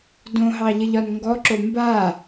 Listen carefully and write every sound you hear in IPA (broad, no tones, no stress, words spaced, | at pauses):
dõɦɑʎəʎɒn ŋɡɔǁo mba